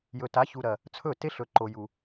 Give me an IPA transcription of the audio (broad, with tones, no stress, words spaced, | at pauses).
jɵ˨ta˨˦çu˨ɾɐ˨ | t͡sʰɵ˦˨te˦ɬɵ˨ ǃo˨ju˨